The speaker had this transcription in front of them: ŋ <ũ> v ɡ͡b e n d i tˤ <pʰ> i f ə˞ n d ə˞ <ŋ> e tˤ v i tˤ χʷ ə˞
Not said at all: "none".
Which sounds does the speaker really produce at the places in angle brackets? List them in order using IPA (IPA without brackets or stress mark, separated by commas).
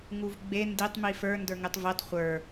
u, m, ŋ